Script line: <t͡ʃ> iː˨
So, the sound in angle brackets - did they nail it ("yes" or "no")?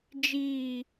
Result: no